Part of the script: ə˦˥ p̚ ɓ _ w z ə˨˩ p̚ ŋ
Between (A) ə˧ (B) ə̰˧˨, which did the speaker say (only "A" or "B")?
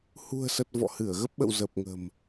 B